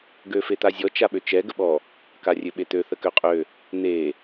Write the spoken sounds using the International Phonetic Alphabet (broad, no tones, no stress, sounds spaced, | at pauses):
ɡ ø f e t̪ a zʲ ɔ t͡ʃ a ɓ ø t͡ʃ ɛ ɡ ə ɓ ɔ | k a rʲ ø ɓ e t̪ ø θ ə k ø qʼ ø | n̪ e